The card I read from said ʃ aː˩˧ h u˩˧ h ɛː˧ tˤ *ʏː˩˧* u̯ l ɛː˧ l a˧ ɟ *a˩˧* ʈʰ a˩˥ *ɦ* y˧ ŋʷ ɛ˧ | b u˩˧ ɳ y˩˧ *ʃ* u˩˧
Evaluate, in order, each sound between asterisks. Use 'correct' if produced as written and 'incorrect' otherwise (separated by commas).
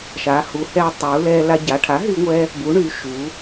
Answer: incorrect, correct, correct, correct